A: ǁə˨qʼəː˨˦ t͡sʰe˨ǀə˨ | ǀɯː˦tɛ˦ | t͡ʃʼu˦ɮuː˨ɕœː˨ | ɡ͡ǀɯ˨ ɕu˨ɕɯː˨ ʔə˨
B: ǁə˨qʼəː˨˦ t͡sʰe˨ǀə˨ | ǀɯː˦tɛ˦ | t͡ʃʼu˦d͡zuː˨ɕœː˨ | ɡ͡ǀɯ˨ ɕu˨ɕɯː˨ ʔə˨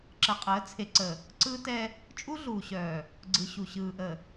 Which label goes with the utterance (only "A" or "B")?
A